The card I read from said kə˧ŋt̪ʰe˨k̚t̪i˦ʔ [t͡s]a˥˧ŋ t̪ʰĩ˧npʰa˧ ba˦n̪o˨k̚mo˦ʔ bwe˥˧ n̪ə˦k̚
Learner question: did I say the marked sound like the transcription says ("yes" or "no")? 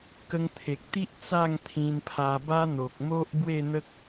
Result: yes